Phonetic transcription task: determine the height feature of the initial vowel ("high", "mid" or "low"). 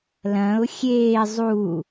low